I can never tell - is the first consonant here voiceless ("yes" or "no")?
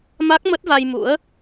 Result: no